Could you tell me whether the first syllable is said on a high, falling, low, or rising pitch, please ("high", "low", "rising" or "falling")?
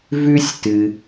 high